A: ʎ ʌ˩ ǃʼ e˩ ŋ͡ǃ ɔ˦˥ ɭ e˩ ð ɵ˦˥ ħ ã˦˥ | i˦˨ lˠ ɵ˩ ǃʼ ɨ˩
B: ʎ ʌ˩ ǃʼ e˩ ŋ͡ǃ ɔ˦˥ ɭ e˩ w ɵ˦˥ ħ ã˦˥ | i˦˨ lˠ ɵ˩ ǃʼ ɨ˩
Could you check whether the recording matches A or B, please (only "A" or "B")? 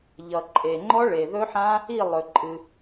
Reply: A